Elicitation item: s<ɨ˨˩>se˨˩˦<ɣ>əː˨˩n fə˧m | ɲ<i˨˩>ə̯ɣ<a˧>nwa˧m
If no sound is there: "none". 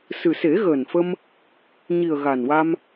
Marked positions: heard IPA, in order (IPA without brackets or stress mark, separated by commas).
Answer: ɨ˨˩, ɣ, i˨˩, a˨˩